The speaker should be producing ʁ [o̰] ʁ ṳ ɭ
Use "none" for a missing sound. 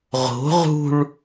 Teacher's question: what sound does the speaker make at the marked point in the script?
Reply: o̤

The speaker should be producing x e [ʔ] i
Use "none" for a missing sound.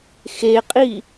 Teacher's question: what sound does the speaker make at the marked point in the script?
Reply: qʼ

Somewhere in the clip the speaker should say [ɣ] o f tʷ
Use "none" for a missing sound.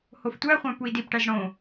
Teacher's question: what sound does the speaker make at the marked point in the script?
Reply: h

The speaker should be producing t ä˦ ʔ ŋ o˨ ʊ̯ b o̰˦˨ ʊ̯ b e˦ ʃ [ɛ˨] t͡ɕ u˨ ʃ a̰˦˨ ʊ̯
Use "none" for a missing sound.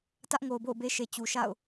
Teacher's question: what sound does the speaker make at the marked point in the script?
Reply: e˨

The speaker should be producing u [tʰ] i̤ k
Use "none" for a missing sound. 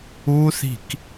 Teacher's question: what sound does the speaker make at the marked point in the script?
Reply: θ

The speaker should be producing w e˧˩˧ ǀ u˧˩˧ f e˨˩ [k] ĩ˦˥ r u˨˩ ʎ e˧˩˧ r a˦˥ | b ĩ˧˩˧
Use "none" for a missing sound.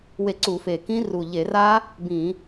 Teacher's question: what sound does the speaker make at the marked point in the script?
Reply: k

